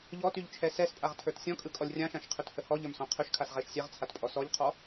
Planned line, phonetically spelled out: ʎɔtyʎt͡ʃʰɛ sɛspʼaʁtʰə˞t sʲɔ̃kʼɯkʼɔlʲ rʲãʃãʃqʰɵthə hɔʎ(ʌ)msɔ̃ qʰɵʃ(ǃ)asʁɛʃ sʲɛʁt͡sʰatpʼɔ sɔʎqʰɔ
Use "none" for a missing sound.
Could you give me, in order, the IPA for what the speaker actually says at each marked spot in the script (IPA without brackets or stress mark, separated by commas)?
ə˞, kʰ